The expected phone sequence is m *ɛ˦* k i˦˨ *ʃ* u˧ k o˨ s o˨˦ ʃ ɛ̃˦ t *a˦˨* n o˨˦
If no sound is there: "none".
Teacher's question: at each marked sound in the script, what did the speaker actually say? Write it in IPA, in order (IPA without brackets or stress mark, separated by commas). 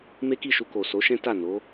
e˦, ʃ, a˦˨